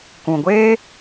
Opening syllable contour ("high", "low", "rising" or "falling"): low